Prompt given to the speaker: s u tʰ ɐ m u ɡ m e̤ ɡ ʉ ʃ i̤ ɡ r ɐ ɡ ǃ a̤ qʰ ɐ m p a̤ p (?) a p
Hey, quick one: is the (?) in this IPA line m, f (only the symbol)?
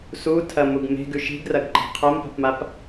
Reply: m